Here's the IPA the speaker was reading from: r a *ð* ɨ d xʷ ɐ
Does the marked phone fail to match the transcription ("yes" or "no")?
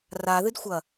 no